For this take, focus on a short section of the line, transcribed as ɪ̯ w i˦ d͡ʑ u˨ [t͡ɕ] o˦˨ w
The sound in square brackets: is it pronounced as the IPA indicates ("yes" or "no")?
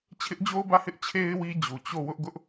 yes